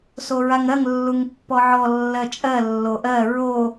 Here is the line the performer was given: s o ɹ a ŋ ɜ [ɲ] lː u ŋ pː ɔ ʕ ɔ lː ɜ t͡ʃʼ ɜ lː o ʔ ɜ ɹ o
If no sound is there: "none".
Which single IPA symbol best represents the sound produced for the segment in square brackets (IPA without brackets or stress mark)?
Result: ŋ